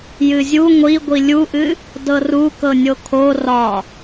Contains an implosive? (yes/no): no